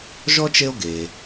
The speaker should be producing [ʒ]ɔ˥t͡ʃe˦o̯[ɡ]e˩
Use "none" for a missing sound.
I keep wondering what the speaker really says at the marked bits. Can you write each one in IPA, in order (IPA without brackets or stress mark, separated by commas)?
ʒ, ɡ